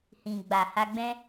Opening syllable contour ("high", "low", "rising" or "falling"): low